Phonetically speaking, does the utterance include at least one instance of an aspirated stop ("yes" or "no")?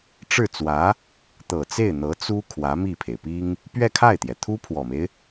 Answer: yes